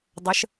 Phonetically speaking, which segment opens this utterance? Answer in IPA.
dˤ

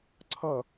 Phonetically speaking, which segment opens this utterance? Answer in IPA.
ǀʰ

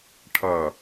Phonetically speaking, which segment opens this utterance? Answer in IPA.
ʈʰ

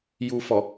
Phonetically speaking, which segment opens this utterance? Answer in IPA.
j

